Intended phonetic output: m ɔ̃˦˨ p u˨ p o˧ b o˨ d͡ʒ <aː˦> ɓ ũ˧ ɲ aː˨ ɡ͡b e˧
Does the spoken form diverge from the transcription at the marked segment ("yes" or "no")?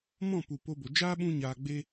no